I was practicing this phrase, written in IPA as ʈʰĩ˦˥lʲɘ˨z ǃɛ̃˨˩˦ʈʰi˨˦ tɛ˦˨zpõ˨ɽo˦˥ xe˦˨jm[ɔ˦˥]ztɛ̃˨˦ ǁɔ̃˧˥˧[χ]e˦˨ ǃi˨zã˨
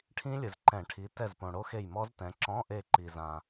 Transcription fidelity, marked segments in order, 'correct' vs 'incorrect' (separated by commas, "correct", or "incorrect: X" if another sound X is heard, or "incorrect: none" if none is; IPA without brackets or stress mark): correct, incorrect: ʔ